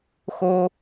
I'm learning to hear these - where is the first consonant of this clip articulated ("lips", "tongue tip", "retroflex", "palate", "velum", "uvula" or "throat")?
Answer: velum